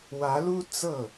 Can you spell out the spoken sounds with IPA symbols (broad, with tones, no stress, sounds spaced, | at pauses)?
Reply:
w ä˧˥ l u˥ t͡s ɤ˥˩